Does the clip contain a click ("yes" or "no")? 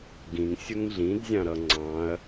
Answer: yes